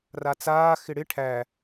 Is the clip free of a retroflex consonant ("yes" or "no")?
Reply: no